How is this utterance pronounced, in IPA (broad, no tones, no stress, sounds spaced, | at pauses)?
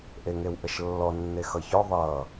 ʔ e ŋ e w ʔ ə ʃ lː ɔ nː e x ʌ ç ɔ ðˤ ʌː